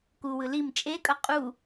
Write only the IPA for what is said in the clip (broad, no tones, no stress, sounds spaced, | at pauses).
k u w ɯ l i m t͡ʃʼ e kʼ ʌ qʼ u